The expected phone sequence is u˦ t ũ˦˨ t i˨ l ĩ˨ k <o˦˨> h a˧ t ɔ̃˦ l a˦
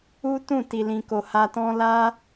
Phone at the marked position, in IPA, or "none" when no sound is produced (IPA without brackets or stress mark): o˨